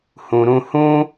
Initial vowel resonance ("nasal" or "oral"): nasal